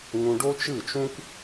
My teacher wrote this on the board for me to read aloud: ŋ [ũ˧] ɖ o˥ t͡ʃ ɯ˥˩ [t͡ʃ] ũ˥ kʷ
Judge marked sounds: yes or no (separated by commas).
yes, yes